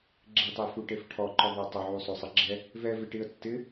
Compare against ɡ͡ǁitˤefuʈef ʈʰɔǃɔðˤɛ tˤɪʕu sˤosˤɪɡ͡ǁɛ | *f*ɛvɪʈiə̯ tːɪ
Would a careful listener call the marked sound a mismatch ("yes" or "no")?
yes